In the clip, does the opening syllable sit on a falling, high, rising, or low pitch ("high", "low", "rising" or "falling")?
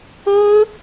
high